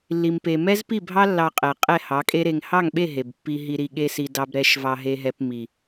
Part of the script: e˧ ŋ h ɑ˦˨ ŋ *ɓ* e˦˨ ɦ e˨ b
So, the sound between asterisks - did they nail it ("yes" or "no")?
yes